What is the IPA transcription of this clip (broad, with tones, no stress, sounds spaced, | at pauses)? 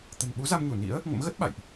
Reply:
t̪ ə̤˨˩ n ɓ u˨˦ z a˧ m ɲ u˧˩ n ḭ˧˥ ə̯ | ŋ ə̰˧˥ m ɣ ə˦˥ t̚ ɓ a̰˧˨ j ʔ